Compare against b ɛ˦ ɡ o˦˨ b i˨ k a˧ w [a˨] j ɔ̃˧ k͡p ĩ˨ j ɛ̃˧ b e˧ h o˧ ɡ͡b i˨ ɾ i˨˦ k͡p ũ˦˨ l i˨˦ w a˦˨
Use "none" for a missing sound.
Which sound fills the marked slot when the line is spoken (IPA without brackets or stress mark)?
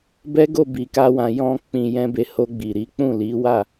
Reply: ã˨